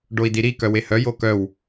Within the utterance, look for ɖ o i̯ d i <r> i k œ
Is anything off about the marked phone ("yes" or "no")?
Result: yes